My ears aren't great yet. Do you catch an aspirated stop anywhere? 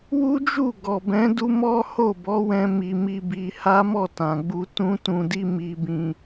no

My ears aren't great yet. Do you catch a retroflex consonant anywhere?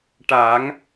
yes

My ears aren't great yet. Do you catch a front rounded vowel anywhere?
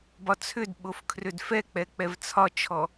yes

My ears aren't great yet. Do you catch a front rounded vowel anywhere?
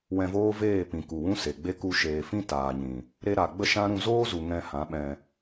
no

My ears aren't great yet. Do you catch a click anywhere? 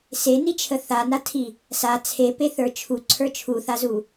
yes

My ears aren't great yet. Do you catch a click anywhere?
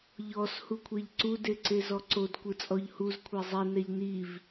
yes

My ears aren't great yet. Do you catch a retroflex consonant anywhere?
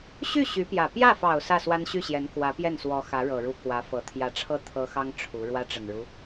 yes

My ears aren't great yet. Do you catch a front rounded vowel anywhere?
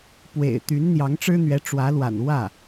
yes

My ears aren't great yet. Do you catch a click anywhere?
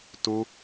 no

